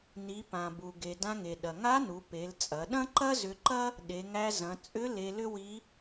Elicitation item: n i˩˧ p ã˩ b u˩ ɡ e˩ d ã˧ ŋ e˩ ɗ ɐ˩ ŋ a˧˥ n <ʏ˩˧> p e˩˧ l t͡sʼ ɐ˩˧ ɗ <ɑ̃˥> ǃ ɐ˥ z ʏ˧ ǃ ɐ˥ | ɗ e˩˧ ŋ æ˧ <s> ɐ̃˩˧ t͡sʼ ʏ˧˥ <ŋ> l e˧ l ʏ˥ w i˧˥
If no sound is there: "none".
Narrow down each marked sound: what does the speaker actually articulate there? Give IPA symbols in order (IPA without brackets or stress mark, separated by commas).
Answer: u˩˧, ɐ̃˥, z, none